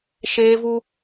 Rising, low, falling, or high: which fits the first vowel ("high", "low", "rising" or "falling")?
high